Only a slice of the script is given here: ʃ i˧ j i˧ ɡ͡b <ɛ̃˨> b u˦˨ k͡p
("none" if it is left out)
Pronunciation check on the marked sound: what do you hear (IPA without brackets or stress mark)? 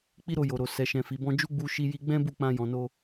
ɛ̃˦